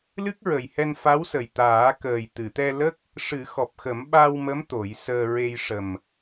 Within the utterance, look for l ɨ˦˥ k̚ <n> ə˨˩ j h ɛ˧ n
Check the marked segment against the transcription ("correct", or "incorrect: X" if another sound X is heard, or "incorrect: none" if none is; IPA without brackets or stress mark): incorrect: ɹ